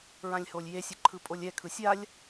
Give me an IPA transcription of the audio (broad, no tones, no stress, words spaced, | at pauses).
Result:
ɹãlʲholʲjesʲɯ ǃʰɯpʼolʲɛkʰɯ sʲalʲ